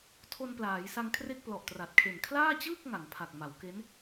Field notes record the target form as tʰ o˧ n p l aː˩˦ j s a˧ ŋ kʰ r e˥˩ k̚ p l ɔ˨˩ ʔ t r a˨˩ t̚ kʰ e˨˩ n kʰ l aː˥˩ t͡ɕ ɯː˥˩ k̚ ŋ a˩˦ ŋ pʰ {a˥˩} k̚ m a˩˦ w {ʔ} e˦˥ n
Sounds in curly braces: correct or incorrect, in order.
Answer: incorrect, incorrect

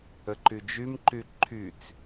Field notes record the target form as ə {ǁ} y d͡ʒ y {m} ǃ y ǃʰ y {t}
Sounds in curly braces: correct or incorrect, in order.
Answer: incorrect, correct, incorrect

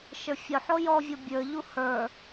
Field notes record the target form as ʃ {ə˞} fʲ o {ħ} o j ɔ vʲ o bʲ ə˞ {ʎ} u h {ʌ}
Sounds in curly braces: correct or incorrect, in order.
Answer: correct, correct, correct, incorrect

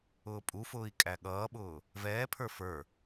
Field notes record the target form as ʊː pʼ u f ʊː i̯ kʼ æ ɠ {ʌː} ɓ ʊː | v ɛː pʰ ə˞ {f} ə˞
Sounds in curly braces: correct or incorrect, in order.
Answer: correct, correct

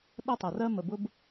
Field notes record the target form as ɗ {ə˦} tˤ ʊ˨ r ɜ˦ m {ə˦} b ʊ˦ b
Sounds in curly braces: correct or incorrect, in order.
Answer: correct, incorrect

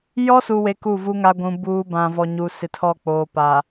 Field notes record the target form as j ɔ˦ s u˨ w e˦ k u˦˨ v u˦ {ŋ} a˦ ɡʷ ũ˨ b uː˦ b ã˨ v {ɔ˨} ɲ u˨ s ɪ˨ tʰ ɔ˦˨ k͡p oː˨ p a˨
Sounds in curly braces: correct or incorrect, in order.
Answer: correct, correct

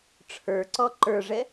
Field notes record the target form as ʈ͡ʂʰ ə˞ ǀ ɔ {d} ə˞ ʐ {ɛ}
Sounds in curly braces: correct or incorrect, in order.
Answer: incorrect, correct

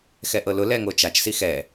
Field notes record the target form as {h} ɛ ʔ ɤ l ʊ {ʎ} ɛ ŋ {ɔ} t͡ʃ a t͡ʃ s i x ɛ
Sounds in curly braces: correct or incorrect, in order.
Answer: incorrect, incorrect, incorrect

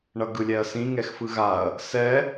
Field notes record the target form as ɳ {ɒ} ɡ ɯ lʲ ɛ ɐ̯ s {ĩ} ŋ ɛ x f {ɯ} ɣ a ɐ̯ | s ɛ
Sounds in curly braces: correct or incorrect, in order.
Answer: incorrect, correct, correct

